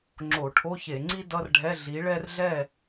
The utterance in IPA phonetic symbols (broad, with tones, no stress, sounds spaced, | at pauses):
ŋ͡ǁ o˧˩˧ ʈʰ o˧˥˧ ç e˧˩˧ ŋ͡ǀ i˥ d ʌ˧˥˧ r ɖʱ ɛ˧˥˧ ɮ i˨˥ ɭ ɛ˥ r ɮ ɛ˥˨